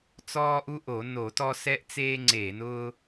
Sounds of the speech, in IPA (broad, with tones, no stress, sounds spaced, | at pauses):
t͡s ɔː˦ ʔ u˦ ʔ o˧˩˧ n o˧˩˧ t ɔ˦ s ɛ˦ ʔ t͡s eː˦ ŋ͡ǀ eː˧˩˧ n ʊː˦